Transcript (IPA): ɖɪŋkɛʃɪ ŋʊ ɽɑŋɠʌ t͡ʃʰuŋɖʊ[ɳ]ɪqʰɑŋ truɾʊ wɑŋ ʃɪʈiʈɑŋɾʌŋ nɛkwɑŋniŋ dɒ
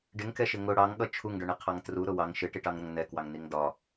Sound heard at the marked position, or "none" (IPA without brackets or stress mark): ɳ